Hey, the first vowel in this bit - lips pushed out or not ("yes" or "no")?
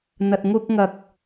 no